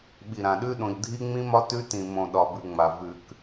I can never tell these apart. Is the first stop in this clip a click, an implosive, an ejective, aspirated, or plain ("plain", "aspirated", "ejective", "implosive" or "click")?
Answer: implosive